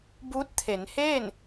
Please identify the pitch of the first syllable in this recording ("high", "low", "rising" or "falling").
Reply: rising